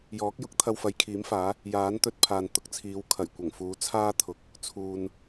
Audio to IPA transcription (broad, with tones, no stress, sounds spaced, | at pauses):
j ɔː˨˥ k̚ j ʊ˥ k̚ t̪ʰ ɐ˧ w f ɐ˨˧ j kʰ iː˨˥ m f aː˨˥ | j aː˨˥ n t̪ ɵ˧ t̚ pʰ aː˨ n t̪ ʊ˨ k̚ t͡sʰ iː˨˧ w kʰ ɐ˨˩ j kʷ ɐ˨˩ ŋ f uː˨˥ t͡sʰ aː˥ t̪ʰ ʊ˨ k̚ | t͡sʰ uː˨ n